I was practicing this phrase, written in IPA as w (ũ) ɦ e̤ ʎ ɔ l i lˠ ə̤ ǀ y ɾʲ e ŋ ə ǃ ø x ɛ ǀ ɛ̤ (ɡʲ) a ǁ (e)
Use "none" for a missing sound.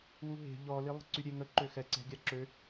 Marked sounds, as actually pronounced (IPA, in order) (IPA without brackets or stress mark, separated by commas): u, ɡʲ, ø